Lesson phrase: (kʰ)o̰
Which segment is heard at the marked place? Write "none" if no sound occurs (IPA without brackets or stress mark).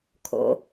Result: kʰ